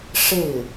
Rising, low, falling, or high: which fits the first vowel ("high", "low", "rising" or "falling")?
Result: falling